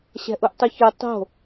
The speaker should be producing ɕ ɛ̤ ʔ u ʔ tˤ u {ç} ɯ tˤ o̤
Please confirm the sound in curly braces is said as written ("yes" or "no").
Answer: yes